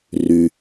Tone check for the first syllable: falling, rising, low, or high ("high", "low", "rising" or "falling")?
low